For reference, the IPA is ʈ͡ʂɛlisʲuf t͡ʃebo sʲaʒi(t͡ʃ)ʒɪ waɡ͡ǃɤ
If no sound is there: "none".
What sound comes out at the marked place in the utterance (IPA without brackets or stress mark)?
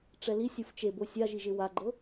none